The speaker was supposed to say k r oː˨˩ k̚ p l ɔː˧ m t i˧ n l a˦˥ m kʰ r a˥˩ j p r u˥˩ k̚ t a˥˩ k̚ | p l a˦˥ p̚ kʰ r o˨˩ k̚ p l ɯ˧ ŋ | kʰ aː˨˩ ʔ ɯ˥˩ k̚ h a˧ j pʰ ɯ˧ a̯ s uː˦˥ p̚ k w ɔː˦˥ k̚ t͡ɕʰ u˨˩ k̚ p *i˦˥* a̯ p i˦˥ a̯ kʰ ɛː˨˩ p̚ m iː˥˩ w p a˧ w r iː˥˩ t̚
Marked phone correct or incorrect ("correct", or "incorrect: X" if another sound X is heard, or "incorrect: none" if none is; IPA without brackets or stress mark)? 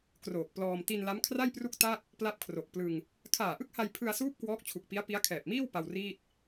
correct